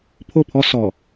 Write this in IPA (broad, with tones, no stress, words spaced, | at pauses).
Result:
pʰo˦˨pʰɔ˦ sɔ˨